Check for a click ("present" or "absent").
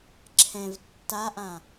present